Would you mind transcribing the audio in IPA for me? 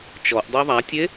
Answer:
t͡ʃɔʔdˤø ðˤatʲe

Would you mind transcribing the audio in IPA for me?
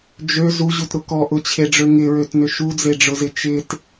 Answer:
d͡ʒø zuʑutɾʊ kɔ ʔʊt͡ɕʰeɖ͡ʐø ŋɪɹøtnʏ ʃud͡zeɖ͡ʐʊzɪ t͡ʃɪt

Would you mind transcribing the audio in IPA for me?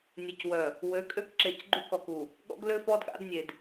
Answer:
nʲe˨cwœ˨ | wø˨˦kʼø˦kǁe˨c ɡ͡ǃu˦kɔ˨ku˨ | ɠɔ̰˦ɡlø˦fɔ˦d ɠa̰˦dnʲe˨d

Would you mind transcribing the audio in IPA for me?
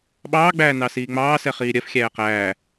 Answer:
ɓɑːɡ͡bæː nɑsiːŋ͡mɑːsɛ χiːɾʲɜfxʲæː qæː

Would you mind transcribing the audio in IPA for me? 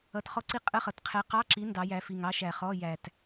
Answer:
ʌ˧˥˧tχɔ˥ǀi˥ qʼə˧˥˧χʌ˨˩tqʰɛ˨˥ qɑ˧˥˧ǁi˨˥ ndɑ˨˥jæ˨˥ fi˨˩ŋɑ˥ʃæ˨˩χɔ˧˥˧ jæ˨˩t

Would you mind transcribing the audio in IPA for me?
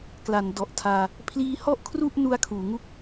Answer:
kla˩˦ndɔ˨˩ʔtʰaː˧ | pʰliː˦˥hɔ˥˩ʔkʰru˥˩ʔ nu˦˥a̯kʰuː˩˦ŋu˥˩k̚

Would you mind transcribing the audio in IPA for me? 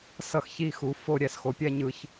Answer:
sʌ˧˩xçi˧˩xu˩˧ fo˧˩ ɾʲɛ˧sxo˩˧pʲɛ˥˧ɲɯ˧ç

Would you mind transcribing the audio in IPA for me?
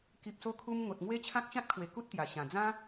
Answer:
ki˨p̚so˧kʰu˧m ŋo˨t̚ŋwe˦t͡ɕʰã˦k̚ ɕã˦t̚kʰwe˨˩ ku˦t̚t̪ja˨˩ɕã˨˩ d͡zã˦

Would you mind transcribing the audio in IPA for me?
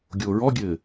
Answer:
ɡʲoːɹɔɡʲɘː

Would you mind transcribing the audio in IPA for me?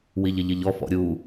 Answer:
wiʎɪʎɪʎɔ fɔ̰ɾʲu

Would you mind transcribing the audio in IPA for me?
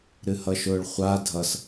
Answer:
ɾɨhʌʃʊːɭχʷa dʱʌs

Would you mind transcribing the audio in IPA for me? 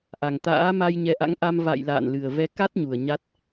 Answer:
ʔa˨˩ŋt̪a̰ː˧˥ma˧j ɲɛ˨˦ʔa̰˧˥ŋʔa˧m va̰˧˨j la̰ː˧˨nlɨ˨˩ə̯vɛ˨˦ ka˦˥t̚ɲu˨˩ə̯ ɲa˦˥t̚

